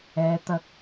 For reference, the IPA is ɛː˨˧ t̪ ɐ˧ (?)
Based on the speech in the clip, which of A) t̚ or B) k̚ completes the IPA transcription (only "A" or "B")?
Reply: B